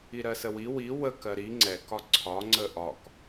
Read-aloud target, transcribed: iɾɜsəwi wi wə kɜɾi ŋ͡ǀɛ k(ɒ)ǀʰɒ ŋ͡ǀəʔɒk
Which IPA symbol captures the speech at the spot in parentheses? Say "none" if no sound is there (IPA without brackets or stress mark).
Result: ɒ